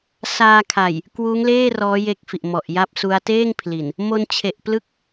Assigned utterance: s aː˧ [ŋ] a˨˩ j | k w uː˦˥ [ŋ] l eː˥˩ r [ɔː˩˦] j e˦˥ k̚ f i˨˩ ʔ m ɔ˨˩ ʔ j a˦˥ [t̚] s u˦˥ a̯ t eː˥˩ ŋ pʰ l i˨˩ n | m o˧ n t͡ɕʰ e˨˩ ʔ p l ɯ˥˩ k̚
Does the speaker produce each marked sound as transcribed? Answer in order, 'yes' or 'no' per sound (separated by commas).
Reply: no, yes, no, no